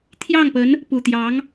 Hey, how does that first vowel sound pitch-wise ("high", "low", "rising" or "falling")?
falling